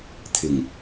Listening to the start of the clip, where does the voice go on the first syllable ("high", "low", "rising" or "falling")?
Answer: low